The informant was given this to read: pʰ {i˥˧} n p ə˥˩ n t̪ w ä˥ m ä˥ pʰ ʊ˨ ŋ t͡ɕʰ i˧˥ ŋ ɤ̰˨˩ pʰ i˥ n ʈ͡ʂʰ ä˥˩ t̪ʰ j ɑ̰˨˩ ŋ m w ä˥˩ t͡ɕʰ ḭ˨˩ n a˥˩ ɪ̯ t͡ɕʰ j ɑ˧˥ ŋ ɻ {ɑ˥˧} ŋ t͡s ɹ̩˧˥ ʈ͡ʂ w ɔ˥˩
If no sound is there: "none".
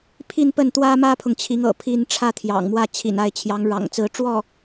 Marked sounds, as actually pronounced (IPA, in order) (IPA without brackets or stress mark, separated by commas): i˥˧, ɑ̰˨˩